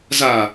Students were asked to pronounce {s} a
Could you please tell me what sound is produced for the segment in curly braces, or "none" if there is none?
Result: z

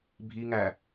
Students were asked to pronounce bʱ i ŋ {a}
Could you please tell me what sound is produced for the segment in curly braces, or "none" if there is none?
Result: æ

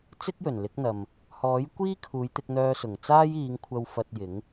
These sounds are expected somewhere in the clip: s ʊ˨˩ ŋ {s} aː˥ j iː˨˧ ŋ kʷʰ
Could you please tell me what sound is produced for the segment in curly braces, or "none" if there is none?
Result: t͡s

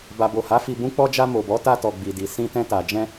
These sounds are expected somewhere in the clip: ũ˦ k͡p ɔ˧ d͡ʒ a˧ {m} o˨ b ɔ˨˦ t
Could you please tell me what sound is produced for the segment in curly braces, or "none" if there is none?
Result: m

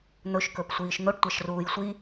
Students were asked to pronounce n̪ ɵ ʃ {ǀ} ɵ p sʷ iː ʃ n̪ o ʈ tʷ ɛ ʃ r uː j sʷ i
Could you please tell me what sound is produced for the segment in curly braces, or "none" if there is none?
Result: k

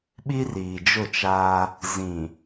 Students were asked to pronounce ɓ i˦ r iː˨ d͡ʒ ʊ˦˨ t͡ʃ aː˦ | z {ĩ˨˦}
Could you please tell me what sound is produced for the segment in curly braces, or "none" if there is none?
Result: ĩ˨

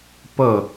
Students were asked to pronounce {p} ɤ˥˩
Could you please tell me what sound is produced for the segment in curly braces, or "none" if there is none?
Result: p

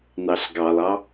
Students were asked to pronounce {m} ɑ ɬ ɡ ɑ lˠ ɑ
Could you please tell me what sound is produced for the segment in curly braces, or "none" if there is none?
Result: n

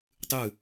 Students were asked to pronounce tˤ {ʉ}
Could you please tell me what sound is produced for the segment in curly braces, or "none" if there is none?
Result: ʉ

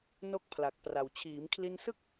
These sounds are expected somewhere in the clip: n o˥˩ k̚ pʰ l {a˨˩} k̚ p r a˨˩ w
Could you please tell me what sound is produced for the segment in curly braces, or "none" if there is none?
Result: a˨˩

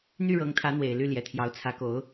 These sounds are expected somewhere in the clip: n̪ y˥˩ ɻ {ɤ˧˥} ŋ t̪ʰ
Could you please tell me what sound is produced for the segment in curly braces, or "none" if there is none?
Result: ɤ˧˥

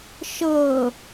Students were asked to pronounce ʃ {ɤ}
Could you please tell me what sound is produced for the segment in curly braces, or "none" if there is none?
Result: ɤ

